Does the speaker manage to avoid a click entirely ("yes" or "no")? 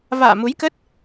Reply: yes